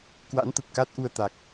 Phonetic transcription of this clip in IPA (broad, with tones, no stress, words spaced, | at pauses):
kwa̰˧˥nt̪ə˨˩p̚ ka˦˥t̚ʔu˧ə̯ t̪a˨˩k̚